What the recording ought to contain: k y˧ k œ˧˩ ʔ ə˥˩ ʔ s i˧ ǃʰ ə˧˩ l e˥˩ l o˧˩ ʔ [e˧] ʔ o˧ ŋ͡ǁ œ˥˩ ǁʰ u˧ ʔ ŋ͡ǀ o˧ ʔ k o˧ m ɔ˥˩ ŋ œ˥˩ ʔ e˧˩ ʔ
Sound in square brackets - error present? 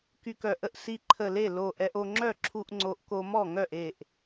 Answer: yes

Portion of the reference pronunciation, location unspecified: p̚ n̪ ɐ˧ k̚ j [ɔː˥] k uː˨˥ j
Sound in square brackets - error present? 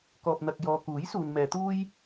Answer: yes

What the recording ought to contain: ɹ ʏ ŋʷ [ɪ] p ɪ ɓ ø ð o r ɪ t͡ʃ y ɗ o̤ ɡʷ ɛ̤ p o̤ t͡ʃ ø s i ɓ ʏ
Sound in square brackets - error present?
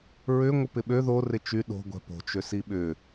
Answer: no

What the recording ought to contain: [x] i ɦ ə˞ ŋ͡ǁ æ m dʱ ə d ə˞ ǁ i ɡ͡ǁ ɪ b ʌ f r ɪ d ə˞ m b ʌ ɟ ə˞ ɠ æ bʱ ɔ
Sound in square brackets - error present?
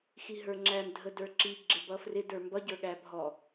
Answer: no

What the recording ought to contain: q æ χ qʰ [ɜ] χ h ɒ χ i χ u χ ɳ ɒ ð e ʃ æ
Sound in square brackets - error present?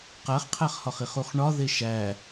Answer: yes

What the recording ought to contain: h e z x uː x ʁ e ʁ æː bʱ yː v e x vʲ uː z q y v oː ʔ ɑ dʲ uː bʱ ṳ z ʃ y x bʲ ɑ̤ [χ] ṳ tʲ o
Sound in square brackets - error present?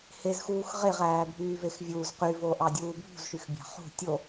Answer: no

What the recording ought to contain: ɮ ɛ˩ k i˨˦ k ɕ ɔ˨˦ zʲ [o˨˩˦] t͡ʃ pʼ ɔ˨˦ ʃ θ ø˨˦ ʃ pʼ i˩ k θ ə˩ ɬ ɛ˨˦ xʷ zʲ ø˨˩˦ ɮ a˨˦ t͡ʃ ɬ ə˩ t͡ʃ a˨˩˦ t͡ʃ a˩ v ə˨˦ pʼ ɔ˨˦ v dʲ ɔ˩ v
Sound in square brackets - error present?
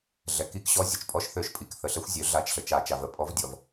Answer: yes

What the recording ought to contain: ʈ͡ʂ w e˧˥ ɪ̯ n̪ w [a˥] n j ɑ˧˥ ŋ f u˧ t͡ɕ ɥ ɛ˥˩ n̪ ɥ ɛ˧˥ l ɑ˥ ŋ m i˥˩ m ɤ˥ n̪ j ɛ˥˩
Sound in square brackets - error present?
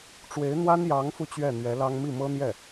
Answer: no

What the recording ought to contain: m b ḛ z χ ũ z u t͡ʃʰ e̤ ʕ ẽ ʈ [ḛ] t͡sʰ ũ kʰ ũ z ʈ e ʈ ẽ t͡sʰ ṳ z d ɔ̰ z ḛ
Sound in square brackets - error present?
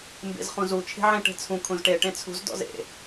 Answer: yes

